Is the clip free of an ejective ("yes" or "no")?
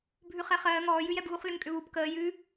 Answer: no